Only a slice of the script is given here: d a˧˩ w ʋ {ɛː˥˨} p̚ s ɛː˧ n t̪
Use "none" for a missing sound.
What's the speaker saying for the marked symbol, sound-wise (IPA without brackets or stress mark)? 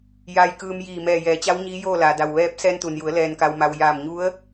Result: ɛː˧˥